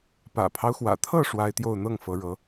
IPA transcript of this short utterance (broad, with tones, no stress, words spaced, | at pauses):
pä̰˨˩pʰɑ˦ʊ̯xwä̰˨˩t̪ʰɤ˥˩ ʂwa˥ɪ̯t̪jo˥˧ʊ̯ n̪ɤ˥˩ŋ fɤ˧˥ɻɤ˧˥